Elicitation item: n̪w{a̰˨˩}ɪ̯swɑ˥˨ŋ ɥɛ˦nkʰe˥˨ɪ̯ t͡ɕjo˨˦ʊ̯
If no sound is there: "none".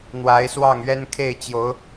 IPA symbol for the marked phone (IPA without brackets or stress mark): a˨˦